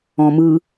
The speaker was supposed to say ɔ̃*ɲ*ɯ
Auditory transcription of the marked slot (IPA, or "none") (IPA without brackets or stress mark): m